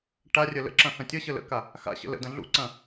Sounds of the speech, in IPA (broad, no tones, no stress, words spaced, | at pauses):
ʈarʲə lə̰ǁɐ̃ xɐ̃tʲəɕə lə̰ka | xa̰ ɕə̰lə̰dɐ̃ ɮṵǀɐ̃